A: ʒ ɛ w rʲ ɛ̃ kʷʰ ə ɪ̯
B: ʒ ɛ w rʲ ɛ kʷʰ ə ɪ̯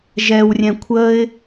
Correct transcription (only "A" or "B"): A